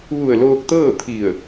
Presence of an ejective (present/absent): absent